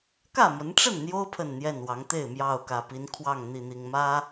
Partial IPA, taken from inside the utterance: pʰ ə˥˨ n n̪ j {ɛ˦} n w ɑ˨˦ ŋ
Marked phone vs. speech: incorrect: ɛ˥˨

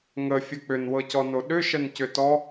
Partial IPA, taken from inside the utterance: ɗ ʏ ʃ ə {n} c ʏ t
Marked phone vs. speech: correct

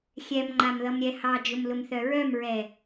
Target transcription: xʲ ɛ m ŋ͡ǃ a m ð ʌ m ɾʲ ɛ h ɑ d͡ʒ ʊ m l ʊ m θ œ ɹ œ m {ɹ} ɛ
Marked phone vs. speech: correct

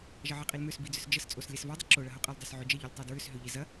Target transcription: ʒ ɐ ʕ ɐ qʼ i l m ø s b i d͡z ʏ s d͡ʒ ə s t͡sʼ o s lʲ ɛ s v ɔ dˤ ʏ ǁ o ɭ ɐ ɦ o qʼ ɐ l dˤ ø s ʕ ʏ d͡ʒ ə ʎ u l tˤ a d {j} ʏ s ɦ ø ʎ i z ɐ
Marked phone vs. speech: incorrect: ɹ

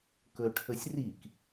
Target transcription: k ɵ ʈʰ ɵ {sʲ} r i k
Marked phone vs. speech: correct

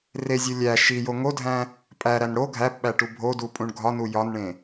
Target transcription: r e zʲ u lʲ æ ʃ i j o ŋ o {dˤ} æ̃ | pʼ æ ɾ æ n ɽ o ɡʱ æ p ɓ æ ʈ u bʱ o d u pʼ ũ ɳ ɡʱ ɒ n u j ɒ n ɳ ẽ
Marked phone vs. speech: incorrect: dʱ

